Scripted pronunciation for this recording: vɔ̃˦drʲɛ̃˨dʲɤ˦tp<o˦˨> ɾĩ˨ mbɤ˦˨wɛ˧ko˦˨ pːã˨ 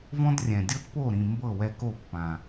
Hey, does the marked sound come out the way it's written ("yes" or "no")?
yes